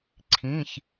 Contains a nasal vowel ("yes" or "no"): yes